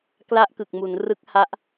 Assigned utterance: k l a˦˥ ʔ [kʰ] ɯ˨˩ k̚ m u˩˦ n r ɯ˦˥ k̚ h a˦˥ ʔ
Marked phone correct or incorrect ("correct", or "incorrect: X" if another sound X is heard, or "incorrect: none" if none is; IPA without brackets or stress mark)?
incorrect: k